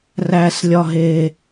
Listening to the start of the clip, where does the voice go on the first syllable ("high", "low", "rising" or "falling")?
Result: low